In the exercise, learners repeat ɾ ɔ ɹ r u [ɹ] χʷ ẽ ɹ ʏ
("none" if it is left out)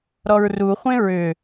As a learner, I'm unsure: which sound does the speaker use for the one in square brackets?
none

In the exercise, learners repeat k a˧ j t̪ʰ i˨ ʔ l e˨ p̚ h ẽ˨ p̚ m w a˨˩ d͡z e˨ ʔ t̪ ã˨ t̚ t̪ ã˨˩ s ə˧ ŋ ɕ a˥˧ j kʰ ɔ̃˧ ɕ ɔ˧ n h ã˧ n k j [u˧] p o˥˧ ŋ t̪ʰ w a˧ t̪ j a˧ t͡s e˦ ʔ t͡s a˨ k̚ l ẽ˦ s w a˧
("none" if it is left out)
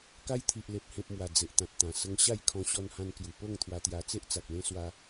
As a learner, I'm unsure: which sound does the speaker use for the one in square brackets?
u˨˩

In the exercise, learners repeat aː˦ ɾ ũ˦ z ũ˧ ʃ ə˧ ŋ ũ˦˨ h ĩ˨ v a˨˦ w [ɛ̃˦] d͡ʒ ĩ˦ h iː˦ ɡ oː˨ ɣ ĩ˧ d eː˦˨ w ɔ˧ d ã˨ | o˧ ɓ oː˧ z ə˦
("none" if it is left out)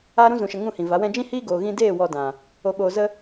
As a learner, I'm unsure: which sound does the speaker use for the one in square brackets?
ɛ̃˦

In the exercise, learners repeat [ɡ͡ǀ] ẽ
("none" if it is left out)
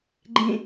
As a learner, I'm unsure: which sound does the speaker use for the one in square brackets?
ɡ͡ǃ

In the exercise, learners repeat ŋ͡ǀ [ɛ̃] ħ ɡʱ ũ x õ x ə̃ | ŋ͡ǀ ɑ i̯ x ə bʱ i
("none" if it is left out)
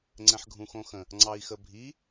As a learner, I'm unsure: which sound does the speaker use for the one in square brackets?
ɛ̃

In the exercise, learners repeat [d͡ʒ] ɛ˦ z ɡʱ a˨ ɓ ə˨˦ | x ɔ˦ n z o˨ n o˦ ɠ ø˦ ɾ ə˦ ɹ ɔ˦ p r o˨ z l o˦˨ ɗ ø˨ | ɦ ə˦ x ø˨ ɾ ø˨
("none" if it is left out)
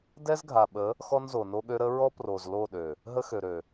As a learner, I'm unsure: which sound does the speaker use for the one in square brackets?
d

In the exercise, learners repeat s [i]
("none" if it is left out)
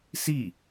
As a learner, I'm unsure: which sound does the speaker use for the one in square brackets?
i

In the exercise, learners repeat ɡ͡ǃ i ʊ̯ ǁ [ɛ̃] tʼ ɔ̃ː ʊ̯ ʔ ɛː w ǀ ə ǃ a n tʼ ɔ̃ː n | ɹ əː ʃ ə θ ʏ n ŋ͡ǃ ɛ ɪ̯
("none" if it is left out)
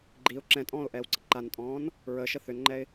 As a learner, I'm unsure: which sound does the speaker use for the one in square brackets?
ɛ̃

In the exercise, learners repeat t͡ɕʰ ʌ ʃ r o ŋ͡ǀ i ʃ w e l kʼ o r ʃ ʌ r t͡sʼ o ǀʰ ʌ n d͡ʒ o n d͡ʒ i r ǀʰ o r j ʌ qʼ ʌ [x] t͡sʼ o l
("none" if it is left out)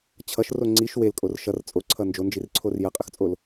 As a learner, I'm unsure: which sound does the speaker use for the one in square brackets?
x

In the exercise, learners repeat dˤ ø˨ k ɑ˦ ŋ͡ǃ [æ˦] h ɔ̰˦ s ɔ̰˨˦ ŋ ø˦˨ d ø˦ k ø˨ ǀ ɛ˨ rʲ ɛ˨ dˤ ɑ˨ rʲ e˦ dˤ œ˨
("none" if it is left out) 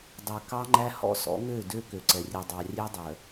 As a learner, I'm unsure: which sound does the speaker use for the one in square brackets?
æ˦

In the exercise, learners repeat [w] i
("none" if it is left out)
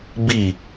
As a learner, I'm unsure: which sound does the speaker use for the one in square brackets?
b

